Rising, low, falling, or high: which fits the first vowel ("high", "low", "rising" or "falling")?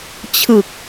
low